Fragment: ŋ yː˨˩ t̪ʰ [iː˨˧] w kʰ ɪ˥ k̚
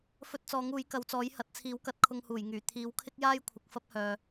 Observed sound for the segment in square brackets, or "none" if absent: iː˨˧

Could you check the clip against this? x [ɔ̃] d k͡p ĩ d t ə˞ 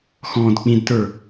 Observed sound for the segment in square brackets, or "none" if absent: ɔ̃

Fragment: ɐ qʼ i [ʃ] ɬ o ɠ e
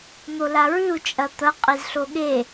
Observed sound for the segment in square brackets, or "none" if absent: z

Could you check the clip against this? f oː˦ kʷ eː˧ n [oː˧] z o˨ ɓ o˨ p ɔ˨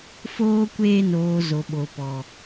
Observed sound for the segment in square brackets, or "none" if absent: oː˨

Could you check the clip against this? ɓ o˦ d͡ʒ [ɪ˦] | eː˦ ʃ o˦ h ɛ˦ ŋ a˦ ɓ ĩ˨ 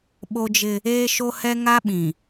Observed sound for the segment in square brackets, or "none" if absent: ɪ˦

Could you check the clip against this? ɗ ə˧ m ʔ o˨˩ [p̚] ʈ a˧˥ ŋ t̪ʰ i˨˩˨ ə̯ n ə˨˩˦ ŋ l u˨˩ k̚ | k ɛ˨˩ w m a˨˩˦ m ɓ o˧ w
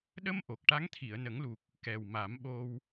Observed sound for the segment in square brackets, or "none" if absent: k̚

